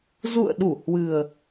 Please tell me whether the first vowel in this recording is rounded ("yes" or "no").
yes